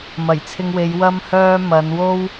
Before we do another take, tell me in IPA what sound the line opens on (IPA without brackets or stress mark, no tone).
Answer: m